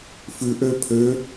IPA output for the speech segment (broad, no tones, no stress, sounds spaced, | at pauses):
f ʉ ʔ ø pʰ ø